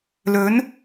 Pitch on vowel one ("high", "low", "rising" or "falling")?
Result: rising